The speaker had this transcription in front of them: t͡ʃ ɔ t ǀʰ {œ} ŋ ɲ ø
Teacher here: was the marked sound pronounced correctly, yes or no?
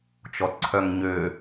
yes